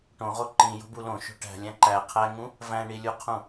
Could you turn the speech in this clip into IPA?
ʈ õ ʁ o ǃ ĩ j o̤ b u l õ ʃ o̤ ʈ æ̤ lʲ æ̃ ǃ æ qʰ æ ŋ ũ | v æ̃ ɳ i lʲ u qʰ ũ

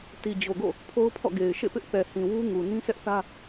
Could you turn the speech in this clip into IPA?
t i˨ d͡ʑ o˨ ɡ o̰˦˨ | pʰ o˦ ʊ̯ pʰ ɔ̰˦˨ ɡ e˨ ɪ̯ ʃ ḛ˦˨ p ɪ˦ ʔ θ ɛ˨ h ĩ˨ w u˦ ŋ u˨ n ĩ˦ sʰ ɛ˦ ʔ θ ä˦

